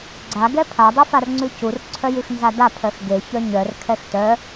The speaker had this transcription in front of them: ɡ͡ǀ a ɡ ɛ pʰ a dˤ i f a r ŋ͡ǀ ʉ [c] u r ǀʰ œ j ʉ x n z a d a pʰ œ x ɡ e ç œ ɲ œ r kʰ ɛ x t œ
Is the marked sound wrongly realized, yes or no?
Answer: no